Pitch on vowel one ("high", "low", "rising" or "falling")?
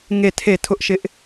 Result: falling